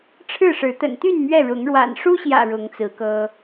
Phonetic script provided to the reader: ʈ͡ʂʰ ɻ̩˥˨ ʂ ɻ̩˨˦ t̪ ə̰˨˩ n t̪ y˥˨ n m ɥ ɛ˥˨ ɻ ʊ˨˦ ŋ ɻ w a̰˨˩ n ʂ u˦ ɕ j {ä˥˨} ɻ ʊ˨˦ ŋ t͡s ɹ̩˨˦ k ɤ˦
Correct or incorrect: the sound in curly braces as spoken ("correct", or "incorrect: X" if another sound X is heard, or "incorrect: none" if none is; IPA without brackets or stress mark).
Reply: incorrect: ä̰˨˩